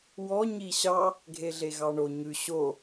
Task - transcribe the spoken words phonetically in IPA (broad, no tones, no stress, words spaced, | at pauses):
wɔ ɲiɕɑ | ɡʱeɮeɣɑɳo ɲʉ ɕo